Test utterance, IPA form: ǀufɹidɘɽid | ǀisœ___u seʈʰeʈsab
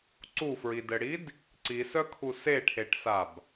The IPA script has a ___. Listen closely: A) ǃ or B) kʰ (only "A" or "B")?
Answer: B